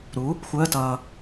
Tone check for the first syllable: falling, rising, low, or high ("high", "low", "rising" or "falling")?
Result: rising